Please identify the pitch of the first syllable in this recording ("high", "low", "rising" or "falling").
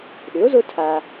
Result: rising